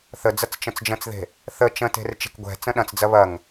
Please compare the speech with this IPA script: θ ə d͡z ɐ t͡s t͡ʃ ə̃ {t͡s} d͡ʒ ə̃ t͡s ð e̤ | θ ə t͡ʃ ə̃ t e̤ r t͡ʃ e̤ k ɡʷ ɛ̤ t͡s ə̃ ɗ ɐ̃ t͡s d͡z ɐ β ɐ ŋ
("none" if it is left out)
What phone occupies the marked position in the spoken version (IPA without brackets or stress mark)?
t͡s